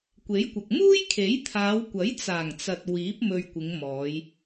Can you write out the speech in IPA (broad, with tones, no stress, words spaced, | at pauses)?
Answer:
kʷe˨˥jkʷɐ˨k̚ muː˥jkʰe˨˥jt̪ʰaː˨˧wkʷɐ˨˥j t͡saː˨˩ŋt͡sɐ˨t̚ wiː˨˥p̚ mɵ˨ɥ kʷɪ˨˧ŋ mɔː˨˧j